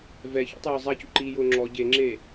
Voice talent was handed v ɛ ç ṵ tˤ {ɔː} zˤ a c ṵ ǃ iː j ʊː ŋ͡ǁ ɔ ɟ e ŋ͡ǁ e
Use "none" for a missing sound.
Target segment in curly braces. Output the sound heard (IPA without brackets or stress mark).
ʊː